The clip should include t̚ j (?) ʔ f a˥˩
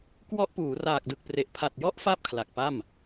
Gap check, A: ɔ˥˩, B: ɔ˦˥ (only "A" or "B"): B